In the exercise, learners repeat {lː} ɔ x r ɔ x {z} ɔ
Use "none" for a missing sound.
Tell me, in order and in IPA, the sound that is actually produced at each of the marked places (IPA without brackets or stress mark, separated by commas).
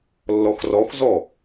lː, z